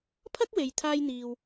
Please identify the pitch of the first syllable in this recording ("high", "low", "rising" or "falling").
high